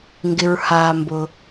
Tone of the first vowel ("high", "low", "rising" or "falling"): low